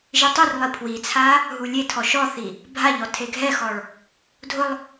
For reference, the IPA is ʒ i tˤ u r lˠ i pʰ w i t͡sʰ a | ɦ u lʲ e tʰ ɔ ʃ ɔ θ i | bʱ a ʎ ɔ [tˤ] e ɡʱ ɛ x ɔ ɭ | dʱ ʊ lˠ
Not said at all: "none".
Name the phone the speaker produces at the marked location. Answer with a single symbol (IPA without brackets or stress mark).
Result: tʰ